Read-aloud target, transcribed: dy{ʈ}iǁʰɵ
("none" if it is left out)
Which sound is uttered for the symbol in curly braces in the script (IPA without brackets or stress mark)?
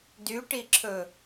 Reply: ʈ